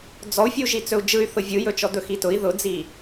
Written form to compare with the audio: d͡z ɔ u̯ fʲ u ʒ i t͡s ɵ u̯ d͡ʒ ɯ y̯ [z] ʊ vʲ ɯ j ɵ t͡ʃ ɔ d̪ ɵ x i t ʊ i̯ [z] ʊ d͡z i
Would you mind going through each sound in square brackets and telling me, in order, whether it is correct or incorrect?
incorrect: θ, incorrect: ð

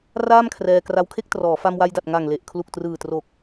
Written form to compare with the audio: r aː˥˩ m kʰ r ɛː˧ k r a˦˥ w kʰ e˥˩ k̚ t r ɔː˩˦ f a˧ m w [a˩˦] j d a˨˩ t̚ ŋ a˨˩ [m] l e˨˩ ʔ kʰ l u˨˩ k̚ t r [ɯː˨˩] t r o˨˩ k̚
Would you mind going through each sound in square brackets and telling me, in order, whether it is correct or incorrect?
incorrect: a˧, incorrect: ŋ, correct

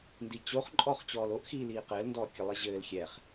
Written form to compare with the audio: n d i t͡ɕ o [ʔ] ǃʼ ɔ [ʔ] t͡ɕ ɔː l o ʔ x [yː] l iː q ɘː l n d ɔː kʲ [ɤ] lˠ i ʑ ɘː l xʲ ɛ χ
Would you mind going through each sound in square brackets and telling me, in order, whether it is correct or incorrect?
incorrect: χ, incorrect: χ, incorrect: iː, correct

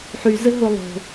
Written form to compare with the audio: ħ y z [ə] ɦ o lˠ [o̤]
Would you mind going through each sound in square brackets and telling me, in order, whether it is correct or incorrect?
correct, correct

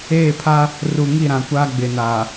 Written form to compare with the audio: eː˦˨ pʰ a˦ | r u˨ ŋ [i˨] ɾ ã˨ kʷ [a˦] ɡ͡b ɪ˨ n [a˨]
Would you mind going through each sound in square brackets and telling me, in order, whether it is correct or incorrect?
incorrect: i˦˨, correct, correct

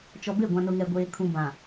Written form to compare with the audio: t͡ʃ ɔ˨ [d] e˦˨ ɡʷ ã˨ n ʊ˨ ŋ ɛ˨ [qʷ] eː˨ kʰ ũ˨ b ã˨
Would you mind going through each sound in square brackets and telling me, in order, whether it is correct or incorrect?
incorrect: b, incorrect: ɡʷ

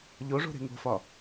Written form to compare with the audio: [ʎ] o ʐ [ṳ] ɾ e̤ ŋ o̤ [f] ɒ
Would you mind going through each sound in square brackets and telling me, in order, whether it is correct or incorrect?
correct, incorrect: o̤, correct

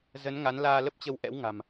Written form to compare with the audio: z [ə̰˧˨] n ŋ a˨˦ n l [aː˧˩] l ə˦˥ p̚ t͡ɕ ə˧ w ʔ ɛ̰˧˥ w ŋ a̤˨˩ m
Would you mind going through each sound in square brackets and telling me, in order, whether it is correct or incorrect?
incorrect: ə˨˦, incorrect: aː˧

